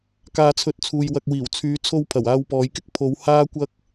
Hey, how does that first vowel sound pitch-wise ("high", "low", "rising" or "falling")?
low